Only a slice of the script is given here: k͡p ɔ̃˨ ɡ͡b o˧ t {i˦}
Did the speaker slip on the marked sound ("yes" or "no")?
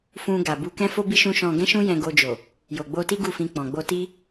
no